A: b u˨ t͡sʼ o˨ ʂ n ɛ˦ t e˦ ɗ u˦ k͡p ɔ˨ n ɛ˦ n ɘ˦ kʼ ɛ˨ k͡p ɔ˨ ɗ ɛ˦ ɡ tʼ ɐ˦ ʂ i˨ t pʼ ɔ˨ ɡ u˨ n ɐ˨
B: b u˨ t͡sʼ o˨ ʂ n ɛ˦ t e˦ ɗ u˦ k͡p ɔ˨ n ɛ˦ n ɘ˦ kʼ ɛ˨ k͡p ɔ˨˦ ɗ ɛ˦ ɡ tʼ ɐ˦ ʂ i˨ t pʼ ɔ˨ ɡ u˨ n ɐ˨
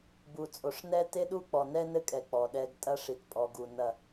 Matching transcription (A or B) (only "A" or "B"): A